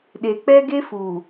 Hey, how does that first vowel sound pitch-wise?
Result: low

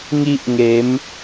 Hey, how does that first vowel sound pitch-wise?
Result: high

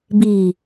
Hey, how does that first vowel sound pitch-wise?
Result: low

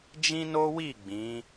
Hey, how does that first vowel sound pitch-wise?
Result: high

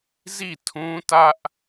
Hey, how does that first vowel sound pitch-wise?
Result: falling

